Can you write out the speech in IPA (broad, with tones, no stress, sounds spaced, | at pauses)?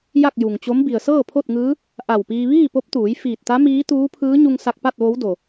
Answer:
j a˥˨ k̚ j u˩ ŋ t͡ɕ o˧˥ m b i˩ ə̯ s ɤː˥˨ pʰ o˥˨ t̚ ŋ ɯː˧˥ | ʔ a˧˩ w p iː˧ ʋ iː˥˨ p o˧˥ p̚ t̪ uː˩˧ j f iː˧˩ t̚ t̪ a˧˥ m iː˧˥ t̪ uː˧˥ pʰ ɯː˧˥ ɲ u˧ ŋ s a˧ k̚ p a˥˨ t̚ ʋ o˧˥ w d o˩